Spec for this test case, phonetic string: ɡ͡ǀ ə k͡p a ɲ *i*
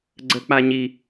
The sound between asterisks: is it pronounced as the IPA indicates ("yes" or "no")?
yes